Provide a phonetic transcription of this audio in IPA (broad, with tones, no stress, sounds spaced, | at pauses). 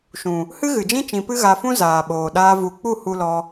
ʃ ũ˨ | h ɨ˦ ɣ ɨ˨ d͡ʒ ĩ˦ t͡ʃ ĩ˧ p ɨ˦ ɣ a˧ f ũ˦ z aː˨ ɓ oː˨ ɗ aː˧ v u˨ k͡p u˦˨ h u˦ l ɔ˦